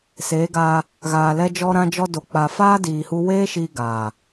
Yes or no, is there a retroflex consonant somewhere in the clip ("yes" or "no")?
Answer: no